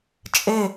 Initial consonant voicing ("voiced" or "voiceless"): voiceless